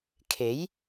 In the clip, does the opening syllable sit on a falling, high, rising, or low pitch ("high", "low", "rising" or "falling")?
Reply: rising